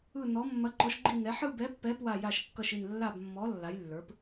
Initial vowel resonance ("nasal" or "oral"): oral